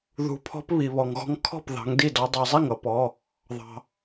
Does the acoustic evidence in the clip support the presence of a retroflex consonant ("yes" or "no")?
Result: no